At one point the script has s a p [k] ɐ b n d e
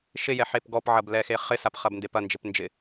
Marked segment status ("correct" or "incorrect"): incorrect